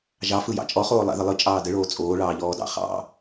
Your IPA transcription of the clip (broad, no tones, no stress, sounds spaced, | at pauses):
ʒ ɑ f ɯ j ɑ̰ t͡ʃʼ ɔ χ oː lˠ a̰ ð ə lˠ ɯ t͡ʃʼ ɑː d ə ɭ oː t͡sʼ oː ɭ ɑː ʎ ɔː d ɑ̰ χ ɑ̰